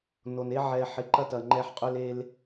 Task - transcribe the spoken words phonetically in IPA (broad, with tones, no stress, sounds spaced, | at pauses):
n o˨ n e˦ ʕ ɛ˧ ħ ɪ˧ ǃ ɐ˦ t ɐ˨ ŋ͡ǃ ɛ˧ ħ qʼ ʏ˧ l e˧ l